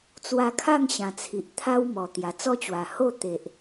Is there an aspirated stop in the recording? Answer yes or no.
yes